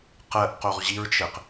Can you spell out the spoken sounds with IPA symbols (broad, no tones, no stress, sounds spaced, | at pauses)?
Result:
q ɜ ʔ q o ʁ ʑ i ɹ t͡ʃ ɘ q